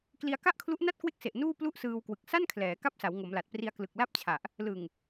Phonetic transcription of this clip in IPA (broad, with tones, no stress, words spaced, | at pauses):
kli˧a̯ka˥˩ʔkʰlu˦˥ʔna˥˩t̚ kwe˦˥k̚se˨˩ʔ nuː˥˩ plu˥˩ʔsɯː˧wkwɯ˨˩k̚ sa˥˩nkʰlɛː˩˦ ka˥˩p̚sa˩˦w ŋo˩˦mla˨˩t̚pri˧a̯ klɯ˨˩k̚la˥˩p̚t͡ɕʰa˨˩ʔ | lɯ˨˩ŋ